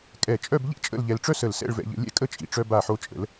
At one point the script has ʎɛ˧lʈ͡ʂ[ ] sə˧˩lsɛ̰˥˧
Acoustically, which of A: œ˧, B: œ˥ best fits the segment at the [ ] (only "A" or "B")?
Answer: B